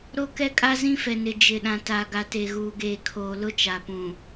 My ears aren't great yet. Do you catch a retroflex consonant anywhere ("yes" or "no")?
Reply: no